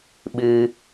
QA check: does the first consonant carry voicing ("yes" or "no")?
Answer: yes